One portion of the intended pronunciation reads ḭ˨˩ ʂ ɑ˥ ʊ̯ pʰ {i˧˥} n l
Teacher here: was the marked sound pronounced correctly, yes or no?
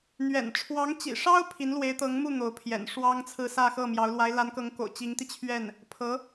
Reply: yes